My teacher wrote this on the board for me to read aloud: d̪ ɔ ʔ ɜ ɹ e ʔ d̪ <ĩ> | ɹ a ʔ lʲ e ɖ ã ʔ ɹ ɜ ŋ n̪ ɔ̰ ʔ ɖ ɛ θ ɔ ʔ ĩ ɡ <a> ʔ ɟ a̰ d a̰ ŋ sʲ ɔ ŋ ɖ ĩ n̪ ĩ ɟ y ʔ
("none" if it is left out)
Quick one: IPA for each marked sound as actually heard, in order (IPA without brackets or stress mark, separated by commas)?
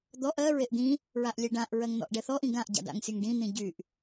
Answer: ĩ, ã